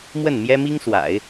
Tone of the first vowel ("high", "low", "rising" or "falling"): falling